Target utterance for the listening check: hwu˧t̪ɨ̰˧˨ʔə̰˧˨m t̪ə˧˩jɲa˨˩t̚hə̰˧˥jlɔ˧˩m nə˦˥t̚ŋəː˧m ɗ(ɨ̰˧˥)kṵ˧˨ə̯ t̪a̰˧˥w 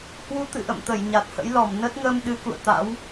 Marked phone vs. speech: incorrect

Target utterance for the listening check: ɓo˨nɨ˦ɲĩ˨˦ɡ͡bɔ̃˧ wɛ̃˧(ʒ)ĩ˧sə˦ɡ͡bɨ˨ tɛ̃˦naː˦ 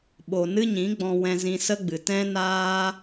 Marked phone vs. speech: incorrect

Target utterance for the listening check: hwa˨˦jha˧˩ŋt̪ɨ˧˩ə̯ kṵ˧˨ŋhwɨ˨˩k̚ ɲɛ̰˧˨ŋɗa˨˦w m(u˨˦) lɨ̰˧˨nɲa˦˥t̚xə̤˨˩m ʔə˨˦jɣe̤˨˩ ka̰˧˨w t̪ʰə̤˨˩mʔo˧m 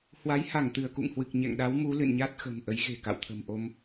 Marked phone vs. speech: correct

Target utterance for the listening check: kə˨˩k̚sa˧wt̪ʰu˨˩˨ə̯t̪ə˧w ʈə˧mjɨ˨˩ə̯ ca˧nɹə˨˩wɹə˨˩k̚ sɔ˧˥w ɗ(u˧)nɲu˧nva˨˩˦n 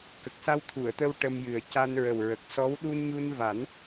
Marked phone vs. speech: correct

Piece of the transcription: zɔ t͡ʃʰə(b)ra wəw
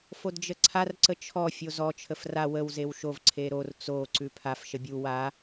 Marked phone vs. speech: incorrect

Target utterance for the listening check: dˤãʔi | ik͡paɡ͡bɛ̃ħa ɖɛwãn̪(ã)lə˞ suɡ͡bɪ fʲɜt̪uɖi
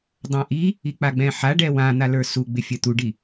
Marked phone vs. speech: incorrect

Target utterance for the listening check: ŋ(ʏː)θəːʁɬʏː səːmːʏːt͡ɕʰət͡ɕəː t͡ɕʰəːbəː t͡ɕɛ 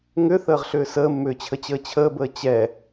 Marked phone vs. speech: incorrect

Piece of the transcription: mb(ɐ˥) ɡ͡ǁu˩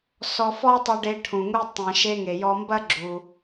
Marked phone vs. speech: correct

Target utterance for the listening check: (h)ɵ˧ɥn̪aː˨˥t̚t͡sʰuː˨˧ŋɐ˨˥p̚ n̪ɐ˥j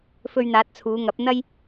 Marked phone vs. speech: incorrect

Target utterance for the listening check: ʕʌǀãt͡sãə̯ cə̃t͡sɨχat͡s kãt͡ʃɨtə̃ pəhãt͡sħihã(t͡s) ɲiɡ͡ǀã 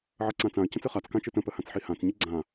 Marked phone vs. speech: correct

